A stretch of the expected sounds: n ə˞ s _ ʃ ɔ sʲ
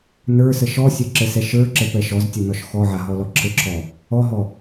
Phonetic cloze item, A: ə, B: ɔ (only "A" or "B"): A